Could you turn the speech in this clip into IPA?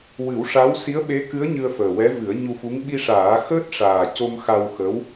w ɨ˨˩˦ w ʂ a˧˥ w s i˧˥ ə̯ ɓ e˧˥ k ɨ˧˥ ə̯ ɲ ɨ˧ ə̯ f əː˨˩ w ɛ˧˥ v ɨ˨˩˦ ə̯ ɲ u˧ f u˧˥ ŋ ɓ i˧ ʂ aː˨˩˦ x əː˦˥ t̚ ʂ aː˨˩ c o˧ m x a˧ w x ə˧˥ w

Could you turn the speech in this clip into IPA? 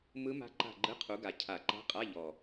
m ɯ˦˥ m a̤˦˥ ǃ a̤˦˨ ɡ͡ǃ ɯ˧˥˧ qʰ u˨˦ ɡ a˨˩ cʰ a˨˩˦ ǃ a̤˧˥˧ qʼ a˧˥˧ ʎ ɔ˨˩

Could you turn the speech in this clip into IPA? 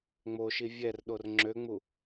ŋ͡m o ʃ i vʲ ɛ r ɗ o r ŋ͡ǁ ø ŋ͡m u

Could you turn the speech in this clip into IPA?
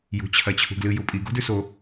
j ṳ t͡ɕʰ ɐ t͡ɕʰ ṳ ɡ l ɨ j u pʼ i ɡ o̤ d ʉ s o

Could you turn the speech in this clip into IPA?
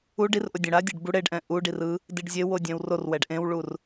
u ɖ i r ʔ o dʲ õ ɽ a dʲ a ɖ b u ɽ e ɖ ʔ ɛ̃ ʔ u ɖ i r ɯ | d i ɖ zʲ e w o dʲ ɛ̃ w r o r w ɛ ɖ ʔ ẽ w ɭ u r

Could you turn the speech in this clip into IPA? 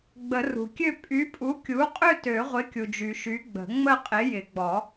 ɡ͡b ə˨˩˦ r ṳ˩ kʲ ø˥˧ pʼ y˨˥ pʼ u˨˥ kʲ u˨˥ qʼ ø˥˧ t ø˨˩˦ ʁʷ ɪ˨˥ kʲ u˩ d͡ʒ y˩ ʃ y˨˥ ɡ͡b ə̤˨˩˦ ŋ͡m ə˥˧ qʼ ɪ˨˥ j ɪ˨˩˦ ɡ͡b ɔ˨˩˦

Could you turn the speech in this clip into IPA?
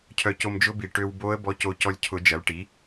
cʰ œ˧ c o˧ m d͡ʒ ʊ˦˥ b i˨˩ ʈ ø˧ w b o˦˥ ə̯ b ɔ˦˥ c o˧ c ɔ˧ lʲ cʰ ʊ˨˩˦ d͡ʒ ɐ˩˥ l ʈ i˩˥

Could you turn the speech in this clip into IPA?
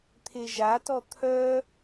t̪ʰ e ʒ a t ɔ t̪ʰ œ

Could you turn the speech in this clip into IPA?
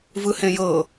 v ɯ h ẽ j ɤ

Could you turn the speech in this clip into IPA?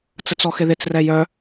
t͡s ə t͡s ɔ x ɪ ð ɪ t͡s r ɛ j œ

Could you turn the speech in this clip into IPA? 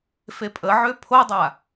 f e pʼ ə ʕ ø pʰ o dˤ a

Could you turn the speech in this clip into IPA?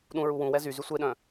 ɗ ũ ɹ u w ũ w ɛ z y z y sʷ e ɗ œ̃

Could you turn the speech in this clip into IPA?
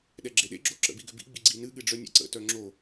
ɗ ɛ ɡ͡ǁ e ɗ ḛ ɡ͡ǁ o ǁ ə̰ b i ɡ ʏ b ḭ ɡ͡b i ɡ͡ǀ i n ɨ ɠ ɨ ɖ͡ʐ œ nʲ ɛ̰ ǀ ə̰ t œ ŋ͡ǁ o

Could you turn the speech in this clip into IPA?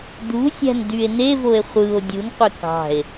d̪ u sʲ æ̤ n d y e̯ n e v o e̯ χʷ ɯ o̯ dʲ u n qʷ e k ɑ̤ e̯

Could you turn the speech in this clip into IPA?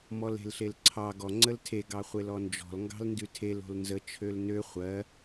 m ɔ l e̤ l ɬ e l ǀʰ ɑ ɡ ɔ ŋ͡ǀ ə l tʰ e ɡ ɑ χʷ e l ɔ n d͡ʒ ɔ̤ l ŋ ɡ ɑ̤ l n d ʉ tʰ e l o̤ l n z ə t͡ʃʰ ø l n ø χʷ ɜ

